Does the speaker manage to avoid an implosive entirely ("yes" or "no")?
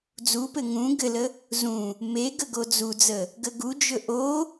yes